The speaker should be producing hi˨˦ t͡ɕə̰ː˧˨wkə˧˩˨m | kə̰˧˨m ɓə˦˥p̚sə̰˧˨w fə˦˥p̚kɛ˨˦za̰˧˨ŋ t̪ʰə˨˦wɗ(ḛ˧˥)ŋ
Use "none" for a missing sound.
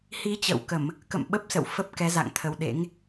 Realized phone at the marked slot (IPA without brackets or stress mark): ḛ˧˥